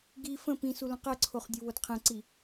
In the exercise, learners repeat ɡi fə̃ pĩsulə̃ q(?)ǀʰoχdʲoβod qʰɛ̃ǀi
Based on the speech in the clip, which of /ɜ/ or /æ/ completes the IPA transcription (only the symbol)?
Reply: ɜ